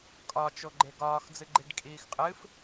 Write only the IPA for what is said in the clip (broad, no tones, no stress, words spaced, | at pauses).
kʼɒ t͡ʃoɡ͡ǃeɡɒːx d͡zɨɡ͡ǃiɖkʼiːxqʼɨf